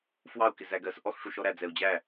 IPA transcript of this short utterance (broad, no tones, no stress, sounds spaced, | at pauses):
f w ɑ u̯ k ɪ z æ ɡ ɜ s ʔ ɔ x ʂ u ʃ ɔ ɾ æ d͡z ɛ u̯ d͡ʑ æ